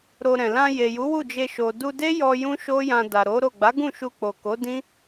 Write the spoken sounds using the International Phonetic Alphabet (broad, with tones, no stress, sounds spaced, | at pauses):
ɾ o˧ ɾ ɛ̃˨ l ã˧ j e˨ j u˨˦ w u˦˨ d͡ʒ e˧ ʃ o˨ d u˧ d e˦ j ɔ˧ j ũ˦ ʃ o˦ j ã˧ d a˨ ɾ o˨˦ ɾ o˦˨ ɡ͡b a˨˦ ɡ ũ˦˨ ʃ u˧ k͡p o˨ k o˨˦ d ĩ˦